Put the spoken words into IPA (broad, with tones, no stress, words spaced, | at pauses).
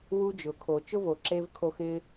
wu˧d͡ʒʊ˨kʰo˨ t͡ʃʊ˦vo˨ǁe˧vkʰo˧ xɪ˧